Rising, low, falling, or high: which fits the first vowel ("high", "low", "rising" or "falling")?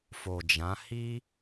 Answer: low